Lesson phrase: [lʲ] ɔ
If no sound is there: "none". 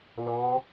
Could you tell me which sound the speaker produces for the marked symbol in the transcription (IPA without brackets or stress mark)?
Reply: l